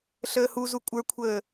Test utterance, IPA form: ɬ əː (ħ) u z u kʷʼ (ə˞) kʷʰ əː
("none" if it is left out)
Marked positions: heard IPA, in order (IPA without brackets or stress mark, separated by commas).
h, ə˞